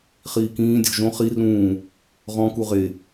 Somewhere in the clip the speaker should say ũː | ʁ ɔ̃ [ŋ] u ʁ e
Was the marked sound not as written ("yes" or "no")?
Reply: yes